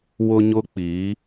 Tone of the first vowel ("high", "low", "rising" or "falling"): high